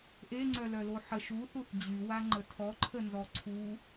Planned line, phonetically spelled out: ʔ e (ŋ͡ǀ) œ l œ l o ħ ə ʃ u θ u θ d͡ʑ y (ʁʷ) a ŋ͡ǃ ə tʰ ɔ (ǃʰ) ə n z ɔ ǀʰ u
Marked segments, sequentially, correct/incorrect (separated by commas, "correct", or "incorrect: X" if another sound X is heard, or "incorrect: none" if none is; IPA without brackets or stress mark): correct, incorrect: w, correct